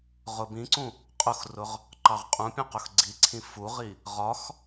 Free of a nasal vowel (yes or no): no